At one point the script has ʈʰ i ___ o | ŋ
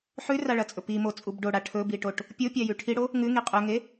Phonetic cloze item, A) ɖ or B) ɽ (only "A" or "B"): B